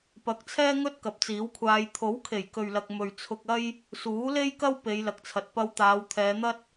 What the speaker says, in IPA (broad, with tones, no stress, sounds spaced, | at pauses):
p ɐ˨ k̚ t͡sʰ ɛː˥ ŋ ɵ˥ t̚ k ɐ˨˥ p̚ t͡s iː˨˥ w kʷʰ aː˧ j t̪ʰ o˨˥ w kʰ e˨˩ j k ɵ˨ ɥ l ɐ˨ k̚ m ɵ˨ ɥ t͡sʰ ʊ˧ k̚ ɐ˥ j | s uː˨˥ l e˥ j k ɐ˥ w p e˨˧ j l ɐ˨ k̚ t͡sʰ ɐ˨ t̚ p ɐ˧ w t̪ aː˨˧ w t̪ʰ ɛː˨˧ n̪ ɐ˥ t̚